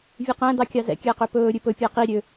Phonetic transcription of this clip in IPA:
vʲ e q æ̃ d ɑ kʲ ɑ z ɛ̰ kʲ æ q ø p ɵː ɾʲ ʉ p ɵ pʲ æ q i ɾʲ ø

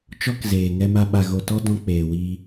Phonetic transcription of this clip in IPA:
t͡ʃ ɔ˦ k z eː˨ ŋ ɛ˧ m a˧ ɓ a˨ ɣ o˨ t ɔ˧ d ɔ̃˦ k͡p eː˨ w iː˧

